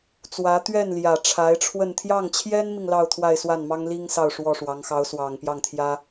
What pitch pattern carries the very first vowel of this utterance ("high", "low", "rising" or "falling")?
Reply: rising